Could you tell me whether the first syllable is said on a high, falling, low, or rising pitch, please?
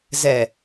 low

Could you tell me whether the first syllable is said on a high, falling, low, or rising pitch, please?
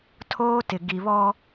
high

